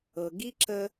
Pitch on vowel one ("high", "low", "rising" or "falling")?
low